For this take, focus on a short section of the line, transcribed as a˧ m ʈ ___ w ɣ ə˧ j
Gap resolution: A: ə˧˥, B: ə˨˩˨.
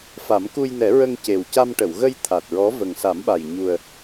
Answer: B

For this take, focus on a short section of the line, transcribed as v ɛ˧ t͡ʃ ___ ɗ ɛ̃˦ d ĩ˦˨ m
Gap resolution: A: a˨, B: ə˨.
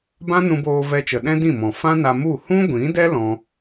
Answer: B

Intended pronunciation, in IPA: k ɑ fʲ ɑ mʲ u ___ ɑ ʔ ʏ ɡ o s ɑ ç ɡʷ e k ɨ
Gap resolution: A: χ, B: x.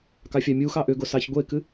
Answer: B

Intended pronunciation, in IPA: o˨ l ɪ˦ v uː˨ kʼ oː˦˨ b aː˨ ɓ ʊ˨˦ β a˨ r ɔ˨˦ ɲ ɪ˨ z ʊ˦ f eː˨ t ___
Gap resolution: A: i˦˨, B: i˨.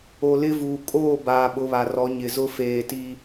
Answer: B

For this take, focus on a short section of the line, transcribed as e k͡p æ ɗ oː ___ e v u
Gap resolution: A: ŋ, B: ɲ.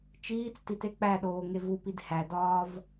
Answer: A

